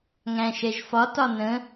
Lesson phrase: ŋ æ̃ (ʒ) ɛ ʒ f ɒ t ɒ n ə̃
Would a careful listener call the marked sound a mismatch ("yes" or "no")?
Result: yes